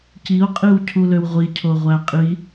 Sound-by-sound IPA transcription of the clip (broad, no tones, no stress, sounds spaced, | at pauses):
c i o̯ qʼ i w cʰ u l ø w ʁʷ i cʰ o ʁʷ æ qʼ i